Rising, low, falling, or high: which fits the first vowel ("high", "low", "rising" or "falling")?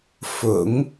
low